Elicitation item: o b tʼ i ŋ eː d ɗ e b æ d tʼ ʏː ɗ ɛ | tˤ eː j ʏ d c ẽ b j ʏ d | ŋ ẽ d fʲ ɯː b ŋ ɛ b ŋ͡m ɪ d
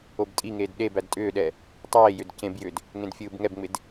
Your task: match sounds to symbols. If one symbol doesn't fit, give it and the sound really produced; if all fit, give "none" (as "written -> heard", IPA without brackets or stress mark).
none